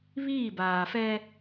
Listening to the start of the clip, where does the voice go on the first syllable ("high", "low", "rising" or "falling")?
falling